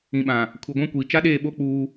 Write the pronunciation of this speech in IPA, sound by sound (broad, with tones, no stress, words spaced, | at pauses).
ĩ˨ɓã˨ | kʰu˨ɡʷã˦kʷiː˨ t͡ʃa˦ɗeː˦˨ɓo˦ k͡puː˦